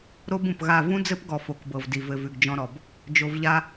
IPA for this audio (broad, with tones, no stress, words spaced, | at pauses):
ɾo˦bũ˨pɣa˦˨ vũ˦d͡zɘ˦pɡɔ˨ fo˨kbɤ˨vdi˨ vɘ˨vʉ˨ɡ d͡ʒɔ̃˦ɾɔ˨b | d͡ʒo˨vʎa˦